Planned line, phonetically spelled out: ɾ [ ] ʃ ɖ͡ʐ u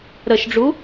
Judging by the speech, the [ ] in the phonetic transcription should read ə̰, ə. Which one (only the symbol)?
ə